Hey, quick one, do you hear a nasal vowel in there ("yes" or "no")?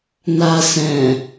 yes